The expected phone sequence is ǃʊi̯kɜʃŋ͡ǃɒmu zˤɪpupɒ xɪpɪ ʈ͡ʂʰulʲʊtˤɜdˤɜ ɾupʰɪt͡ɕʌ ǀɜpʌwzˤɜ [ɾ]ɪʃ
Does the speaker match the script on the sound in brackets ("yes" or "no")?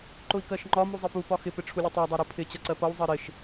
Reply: yes